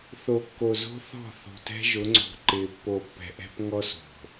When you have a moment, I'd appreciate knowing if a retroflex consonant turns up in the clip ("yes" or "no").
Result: no